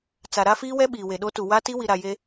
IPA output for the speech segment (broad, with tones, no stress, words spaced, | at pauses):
t͡sa˨ɾa˦fiː˦wɛ˦ ɓiː˨we˨ɗo˦tu˨ wa˦ti˦ wi˨ ɾa˨je˦